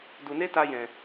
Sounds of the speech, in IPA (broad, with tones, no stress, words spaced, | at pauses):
du˨ne˦ta˧ jɛ̃˨